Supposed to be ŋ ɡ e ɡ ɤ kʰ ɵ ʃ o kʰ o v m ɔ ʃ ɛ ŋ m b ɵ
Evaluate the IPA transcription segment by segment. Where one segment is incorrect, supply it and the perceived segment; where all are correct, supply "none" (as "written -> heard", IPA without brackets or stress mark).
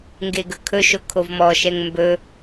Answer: ɤ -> ɵ